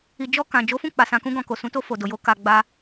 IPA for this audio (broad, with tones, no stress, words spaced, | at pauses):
i˨d͡ʒɔ˧ kã˨ d͡ʒo˨˦fũ˦˨ k͡pa˨ sã˧kũ˦ɡɔ̃˧ ko˨sũ˨˦ to˧ fo˨do˨jo˨˦ ka˧ ɡ͡ba˧